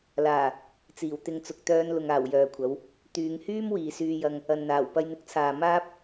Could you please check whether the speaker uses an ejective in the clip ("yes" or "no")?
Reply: no